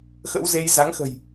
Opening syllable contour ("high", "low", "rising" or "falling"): rising